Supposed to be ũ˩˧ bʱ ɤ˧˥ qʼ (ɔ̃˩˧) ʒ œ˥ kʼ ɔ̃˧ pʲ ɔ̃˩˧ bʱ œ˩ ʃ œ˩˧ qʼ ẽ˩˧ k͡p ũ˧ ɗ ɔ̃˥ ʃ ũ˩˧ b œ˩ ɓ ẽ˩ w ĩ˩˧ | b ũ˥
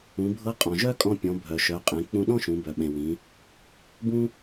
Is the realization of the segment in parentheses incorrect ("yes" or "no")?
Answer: yes